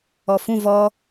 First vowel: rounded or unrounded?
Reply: rounded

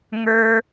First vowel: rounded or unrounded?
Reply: unrounded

